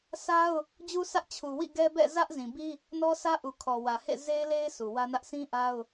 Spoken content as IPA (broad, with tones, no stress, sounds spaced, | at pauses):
sʰ a˦ ʊ̯ | d͡ʑ u˦ sʰ ä˦ ʔ t͡ɕʰ u˨ w ḭ˦˨ ɡ ɛ˦ b ɛ̰˦˨ z ä˦ ʔ z ĩ˨ b i˦ | n ɔ˦ sʰ ä˦ ʔ u˨ kʰ ɔ˨ w ä˨ h ḛ˦˨ z e˦ ɪ̯ l e˦ ɪ̯ sʰ u˨ w ä˦ n ä˦ ʔ sʰ ĩ˦ ʔ a˦ ʊ̯